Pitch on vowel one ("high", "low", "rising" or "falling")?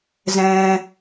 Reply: high